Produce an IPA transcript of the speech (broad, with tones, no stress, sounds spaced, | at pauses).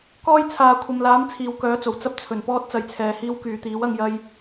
k ɔː˧ j t͡sʰ aː˨˧ kʷʰ ɐ˨ m l aː˨˥ m t͡sʰ iː˨ w k œː˨˥ t͡s o˨˩ w t͡s ɐ˥ p̚ t͡sʰ ɵ˨˩ n p ɔː˥ t̚ t͡s ɐ˨˥ j t͡sʰ ɛː˧ h iː˥ w k yː˨ t̪ iː˨˥ w ɐ˧ ŋ j ɐ˥ j